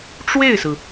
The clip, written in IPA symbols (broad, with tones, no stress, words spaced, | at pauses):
ʈ͡ʂwe˥˩ɪ̯sɹ̩˩